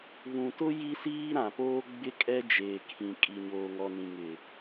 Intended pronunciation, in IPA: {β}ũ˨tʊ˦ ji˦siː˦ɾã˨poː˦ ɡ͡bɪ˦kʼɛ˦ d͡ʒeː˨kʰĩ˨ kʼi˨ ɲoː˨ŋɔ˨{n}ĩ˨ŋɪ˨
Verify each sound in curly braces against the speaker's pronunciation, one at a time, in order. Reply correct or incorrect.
correct, correct

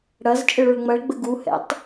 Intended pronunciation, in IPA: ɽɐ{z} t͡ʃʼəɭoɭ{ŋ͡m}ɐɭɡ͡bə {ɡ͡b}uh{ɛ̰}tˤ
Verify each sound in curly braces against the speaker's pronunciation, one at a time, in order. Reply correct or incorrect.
correct, correct, incorrect: ɡ, correct

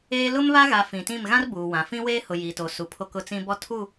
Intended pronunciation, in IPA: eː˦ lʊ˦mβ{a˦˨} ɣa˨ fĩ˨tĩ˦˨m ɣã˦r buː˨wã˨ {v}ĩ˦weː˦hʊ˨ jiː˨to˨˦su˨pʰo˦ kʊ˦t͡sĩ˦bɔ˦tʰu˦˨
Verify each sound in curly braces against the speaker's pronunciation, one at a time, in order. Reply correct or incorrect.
incorrect: a˦, incorrect: f

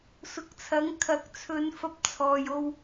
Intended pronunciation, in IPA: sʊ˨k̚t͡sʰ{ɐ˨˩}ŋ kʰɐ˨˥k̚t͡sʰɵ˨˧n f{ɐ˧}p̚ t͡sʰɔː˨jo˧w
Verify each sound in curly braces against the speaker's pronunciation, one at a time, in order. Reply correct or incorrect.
incorrect: ɐ˨˥, correct

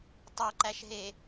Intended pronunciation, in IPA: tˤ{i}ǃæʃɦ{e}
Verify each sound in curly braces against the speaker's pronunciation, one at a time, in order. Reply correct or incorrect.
incorrect: e, correct

